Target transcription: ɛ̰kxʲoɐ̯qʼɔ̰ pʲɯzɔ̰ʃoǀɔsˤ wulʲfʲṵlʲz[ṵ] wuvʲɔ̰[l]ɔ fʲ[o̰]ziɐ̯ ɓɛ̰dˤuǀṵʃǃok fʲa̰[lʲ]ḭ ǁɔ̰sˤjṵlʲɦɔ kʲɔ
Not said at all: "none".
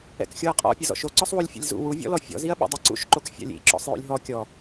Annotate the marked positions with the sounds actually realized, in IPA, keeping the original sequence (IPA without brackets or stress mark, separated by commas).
ṵ, l, ɔ̰, lʲ